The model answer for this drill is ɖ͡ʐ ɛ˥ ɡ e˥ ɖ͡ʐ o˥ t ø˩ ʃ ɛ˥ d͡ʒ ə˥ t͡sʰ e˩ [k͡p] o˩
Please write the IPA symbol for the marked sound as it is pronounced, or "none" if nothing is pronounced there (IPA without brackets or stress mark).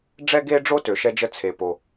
p